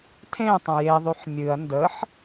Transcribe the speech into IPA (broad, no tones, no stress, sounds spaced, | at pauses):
tʰ ẽ tˤ ə̃ j e ðˤ y ħ mʲ ɨ ɐ̯ n d ə ħ